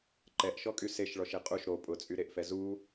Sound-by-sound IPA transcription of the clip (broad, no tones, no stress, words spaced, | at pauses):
ǃɛʔʃɔkʼy seʃɭɔʃe qʼuʃ ɾo pʼʊt͡sʼyɾeʔfɛ zu